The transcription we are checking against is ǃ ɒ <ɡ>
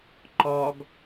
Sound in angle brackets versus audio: correct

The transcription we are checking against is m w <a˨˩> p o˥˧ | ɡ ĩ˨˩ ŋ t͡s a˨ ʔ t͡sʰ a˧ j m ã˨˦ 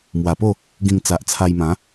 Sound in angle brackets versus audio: correct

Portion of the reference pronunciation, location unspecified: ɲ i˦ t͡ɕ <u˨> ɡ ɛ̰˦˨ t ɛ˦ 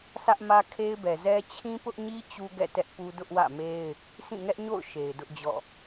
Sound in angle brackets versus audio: incorrect: u˦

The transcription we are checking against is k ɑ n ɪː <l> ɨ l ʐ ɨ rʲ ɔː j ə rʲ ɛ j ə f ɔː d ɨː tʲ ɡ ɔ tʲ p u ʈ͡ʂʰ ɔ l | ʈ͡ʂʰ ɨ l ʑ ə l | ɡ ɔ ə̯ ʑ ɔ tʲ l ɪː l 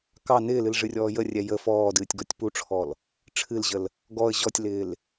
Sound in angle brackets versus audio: correct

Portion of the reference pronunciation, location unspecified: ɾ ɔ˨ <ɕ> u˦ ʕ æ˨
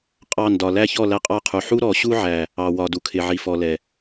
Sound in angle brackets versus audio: correct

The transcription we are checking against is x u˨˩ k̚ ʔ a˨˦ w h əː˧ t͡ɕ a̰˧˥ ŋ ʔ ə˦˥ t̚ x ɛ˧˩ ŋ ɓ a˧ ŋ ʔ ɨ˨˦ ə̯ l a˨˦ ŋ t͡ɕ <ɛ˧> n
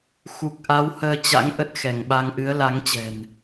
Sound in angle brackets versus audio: incorrect: ɛ̤˨˩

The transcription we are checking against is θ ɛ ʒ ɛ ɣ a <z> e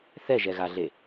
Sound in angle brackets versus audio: incorrect: ɮ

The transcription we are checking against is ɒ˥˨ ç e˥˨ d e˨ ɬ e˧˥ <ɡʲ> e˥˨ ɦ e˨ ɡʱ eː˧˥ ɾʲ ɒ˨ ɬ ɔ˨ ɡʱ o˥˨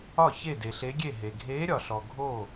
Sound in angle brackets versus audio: correct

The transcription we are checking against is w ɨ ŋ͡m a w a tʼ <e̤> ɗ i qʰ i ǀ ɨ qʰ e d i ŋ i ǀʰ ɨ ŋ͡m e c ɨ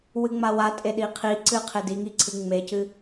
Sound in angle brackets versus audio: incorrect: e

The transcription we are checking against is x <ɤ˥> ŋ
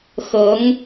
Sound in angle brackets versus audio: incorrect: ɤ˧˥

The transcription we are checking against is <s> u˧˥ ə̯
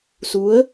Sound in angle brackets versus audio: correct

